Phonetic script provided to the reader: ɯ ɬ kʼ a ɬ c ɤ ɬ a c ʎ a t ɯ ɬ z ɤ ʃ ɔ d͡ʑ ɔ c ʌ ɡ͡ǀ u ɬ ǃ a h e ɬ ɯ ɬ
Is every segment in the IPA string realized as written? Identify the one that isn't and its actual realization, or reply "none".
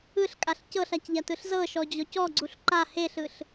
ʌ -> ɔ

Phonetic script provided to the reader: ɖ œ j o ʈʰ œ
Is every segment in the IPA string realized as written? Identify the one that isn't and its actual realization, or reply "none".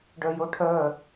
none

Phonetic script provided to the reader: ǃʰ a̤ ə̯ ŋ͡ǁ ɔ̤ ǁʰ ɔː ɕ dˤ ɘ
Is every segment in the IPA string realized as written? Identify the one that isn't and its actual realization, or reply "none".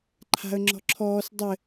ɕ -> s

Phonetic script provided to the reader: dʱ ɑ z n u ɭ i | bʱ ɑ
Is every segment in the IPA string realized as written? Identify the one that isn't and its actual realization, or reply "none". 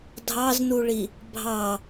none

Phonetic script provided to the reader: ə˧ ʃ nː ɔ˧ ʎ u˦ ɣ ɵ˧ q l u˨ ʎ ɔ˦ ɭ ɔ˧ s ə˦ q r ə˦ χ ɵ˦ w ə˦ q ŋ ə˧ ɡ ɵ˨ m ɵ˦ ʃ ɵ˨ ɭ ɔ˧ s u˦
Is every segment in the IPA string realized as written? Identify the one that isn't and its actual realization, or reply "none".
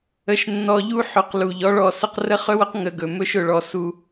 ɣ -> ħ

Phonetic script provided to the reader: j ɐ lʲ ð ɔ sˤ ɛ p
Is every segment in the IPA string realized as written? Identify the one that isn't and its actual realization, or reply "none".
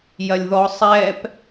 none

